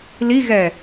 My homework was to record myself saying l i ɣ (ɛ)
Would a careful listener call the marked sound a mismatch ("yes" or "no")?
no